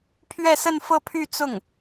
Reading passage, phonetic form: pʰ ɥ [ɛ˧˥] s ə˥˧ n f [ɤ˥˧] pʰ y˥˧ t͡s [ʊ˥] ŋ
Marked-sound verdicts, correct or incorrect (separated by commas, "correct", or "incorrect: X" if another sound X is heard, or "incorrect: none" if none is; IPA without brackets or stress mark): incorrect: ɛ˥˧, correct, incorrect: ʊ˥˩